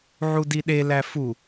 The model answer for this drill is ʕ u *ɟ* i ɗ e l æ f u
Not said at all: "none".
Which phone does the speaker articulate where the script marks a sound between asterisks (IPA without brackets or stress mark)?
d